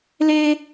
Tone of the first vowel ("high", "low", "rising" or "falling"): high